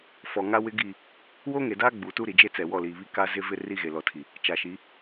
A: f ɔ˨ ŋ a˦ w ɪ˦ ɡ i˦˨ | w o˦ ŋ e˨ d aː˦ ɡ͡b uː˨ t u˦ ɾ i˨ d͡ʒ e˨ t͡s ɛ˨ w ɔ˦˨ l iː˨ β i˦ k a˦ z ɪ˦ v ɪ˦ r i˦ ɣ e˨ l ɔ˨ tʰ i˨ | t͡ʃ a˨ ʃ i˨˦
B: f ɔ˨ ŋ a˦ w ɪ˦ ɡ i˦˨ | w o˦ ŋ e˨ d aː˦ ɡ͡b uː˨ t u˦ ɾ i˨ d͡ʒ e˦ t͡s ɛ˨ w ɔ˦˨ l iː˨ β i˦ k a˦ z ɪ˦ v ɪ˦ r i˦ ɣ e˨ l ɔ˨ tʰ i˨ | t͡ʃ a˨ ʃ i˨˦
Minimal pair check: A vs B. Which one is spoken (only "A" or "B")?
B